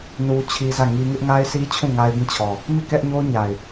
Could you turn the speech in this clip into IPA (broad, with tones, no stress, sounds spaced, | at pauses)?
n u˦ t͡ɕʰ i˦ z ä˦˨ ŋ i˦ ŋ ɪ˦ ʔ ŋ a˦ ɪ̯ s i˦ t͡ɕʰ ũ˦˨ ŋ a˦ ɪ̯ b ĩ˦˨ t͡ɕʰ ɔ˨ | m i˦˨ k ɛ˦ ʔ ɲ o˦ ʊ̯ ɲ a˨ ɪ̯